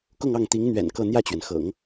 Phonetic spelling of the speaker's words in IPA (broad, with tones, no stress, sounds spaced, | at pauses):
k ʊ˥˧ ŋ ɑ˥˩ ŋ t̪ i˧˥ ŋ n̪ ɥ ɛ̰˨˩ n k ɤ˥˧ n̪ j ä˥˩ t͡ɕ ɥ ɛ˩ n x ɤ̰˨˩˦ ŋ